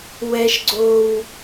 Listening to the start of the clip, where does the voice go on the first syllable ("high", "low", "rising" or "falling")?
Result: high